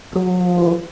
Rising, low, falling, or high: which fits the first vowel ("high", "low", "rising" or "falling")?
low